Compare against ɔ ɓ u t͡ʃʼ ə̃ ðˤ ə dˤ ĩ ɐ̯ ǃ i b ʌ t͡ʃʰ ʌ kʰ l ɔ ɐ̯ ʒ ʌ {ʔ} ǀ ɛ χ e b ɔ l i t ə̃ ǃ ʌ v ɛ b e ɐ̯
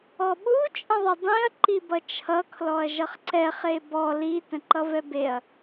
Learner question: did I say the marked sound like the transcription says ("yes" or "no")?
no